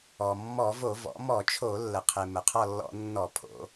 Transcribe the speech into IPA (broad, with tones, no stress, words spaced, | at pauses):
ɔ˩mːɔ˧˩˧ vo˧˩˧ vɔ̰˩˧ mɔ˧˩˧t͡ʃʰo˧˩˧lːə˩qʰe˩ mə˩qʰɔ˦˨lːɔ̰˧˩˧ nːɔ˧˩˧pʰo̰˩˧